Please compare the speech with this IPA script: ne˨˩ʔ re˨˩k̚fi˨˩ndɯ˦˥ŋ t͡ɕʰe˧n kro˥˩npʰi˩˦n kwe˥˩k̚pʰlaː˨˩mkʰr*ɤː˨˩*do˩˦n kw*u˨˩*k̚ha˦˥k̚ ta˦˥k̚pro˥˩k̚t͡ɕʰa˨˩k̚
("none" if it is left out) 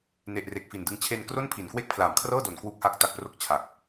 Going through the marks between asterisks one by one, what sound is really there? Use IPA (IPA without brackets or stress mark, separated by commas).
ɤː˥˩, u˦˥